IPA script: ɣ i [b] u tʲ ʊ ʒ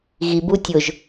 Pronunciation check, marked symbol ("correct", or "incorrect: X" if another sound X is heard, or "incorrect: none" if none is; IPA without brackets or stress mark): correct